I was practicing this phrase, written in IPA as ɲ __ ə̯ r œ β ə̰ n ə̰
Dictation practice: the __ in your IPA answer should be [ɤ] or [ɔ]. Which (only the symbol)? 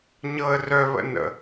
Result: ɤ